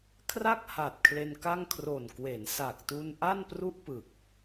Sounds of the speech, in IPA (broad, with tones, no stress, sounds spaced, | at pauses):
kʰ r a˥˩ k̚ h a˨˩ t̚ kʰ l e˧ n k a˥˩ ŋ kʰ r o˨˩ n k w e˩˦ n s a˨˩ k̚ t u˧ n ʔ a˥˩ n p r u˥˩ ʔ p ɯ˨˩ k̚